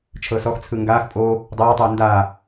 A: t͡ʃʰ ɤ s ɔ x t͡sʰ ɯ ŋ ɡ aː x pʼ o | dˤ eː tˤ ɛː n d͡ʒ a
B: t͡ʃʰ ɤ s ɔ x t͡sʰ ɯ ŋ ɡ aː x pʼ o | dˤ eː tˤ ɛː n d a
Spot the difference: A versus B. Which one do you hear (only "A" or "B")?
B